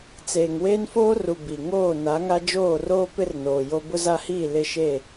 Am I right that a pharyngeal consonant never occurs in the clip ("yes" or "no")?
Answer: yes